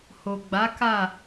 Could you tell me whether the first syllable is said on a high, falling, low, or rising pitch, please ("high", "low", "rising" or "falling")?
low